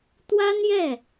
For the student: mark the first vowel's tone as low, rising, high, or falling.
high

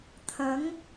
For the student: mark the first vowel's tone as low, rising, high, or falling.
rising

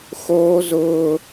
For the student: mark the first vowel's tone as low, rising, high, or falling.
high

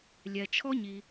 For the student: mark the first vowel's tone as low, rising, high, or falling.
low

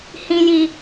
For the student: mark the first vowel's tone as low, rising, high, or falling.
high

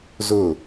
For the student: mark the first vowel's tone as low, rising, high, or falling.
falling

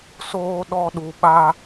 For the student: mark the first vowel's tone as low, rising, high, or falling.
high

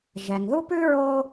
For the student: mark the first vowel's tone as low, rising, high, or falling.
low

